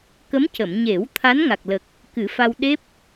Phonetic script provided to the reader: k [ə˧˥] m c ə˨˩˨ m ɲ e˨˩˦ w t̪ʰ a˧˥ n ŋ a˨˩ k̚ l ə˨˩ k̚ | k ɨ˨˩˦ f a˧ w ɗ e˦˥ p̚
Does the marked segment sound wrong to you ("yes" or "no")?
no